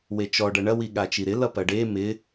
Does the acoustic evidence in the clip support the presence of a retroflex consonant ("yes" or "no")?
yes